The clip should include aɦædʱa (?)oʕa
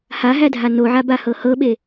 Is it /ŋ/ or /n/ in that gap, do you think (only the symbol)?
n